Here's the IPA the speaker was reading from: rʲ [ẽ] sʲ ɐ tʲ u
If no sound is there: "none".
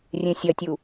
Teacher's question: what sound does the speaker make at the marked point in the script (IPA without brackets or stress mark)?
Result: ẽ